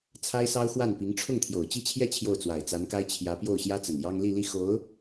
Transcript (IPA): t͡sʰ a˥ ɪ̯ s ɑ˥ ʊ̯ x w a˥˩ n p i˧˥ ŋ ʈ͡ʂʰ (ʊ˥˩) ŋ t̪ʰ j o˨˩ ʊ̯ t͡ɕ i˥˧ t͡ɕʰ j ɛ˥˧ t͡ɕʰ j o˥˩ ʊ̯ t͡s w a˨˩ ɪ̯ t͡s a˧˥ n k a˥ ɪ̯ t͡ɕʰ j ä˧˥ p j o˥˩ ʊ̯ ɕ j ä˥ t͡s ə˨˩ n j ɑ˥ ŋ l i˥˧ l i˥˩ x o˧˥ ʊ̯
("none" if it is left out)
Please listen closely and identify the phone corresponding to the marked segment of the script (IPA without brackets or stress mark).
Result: ʊ˥˩